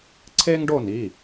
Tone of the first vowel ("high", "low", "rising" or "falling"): high